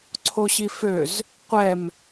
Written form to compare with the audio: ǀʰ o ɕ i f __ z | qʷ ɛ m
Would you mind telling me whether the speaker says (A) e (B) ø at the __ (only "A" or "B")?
B